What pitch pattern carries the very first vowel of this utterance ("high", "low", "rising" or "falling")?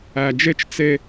low